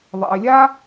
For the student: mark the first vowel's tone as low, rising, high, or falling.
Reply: low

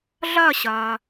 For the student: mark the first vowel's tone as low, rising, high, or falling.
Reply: falling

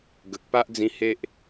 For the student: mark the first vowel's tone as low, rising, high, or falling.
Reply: low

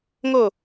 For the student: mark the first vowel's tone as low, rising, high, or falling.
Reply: falling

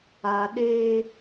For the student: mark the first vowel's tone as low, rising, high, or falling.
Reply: high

